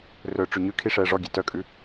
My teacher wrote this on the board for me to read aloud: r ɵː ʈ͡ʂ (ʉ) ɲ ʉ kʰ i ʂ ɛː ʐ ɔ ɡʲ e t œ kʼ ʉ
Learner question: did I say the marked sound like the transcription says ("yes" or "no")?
yes